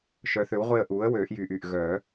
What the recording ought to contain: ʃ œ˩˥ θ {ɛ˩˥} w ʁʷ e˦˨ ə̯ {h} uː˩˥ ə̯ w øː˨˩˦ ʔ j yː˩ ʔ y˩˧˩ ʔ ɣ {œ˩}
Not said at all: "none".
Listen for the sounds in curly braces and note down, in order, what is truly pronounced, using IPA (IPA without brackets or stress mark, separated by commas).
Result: ø˩˥, ʔ, œ˨˩˦